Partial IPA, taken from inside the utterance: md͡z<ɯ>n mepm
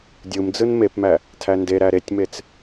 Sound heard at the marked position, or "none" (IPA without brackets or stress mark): ɯ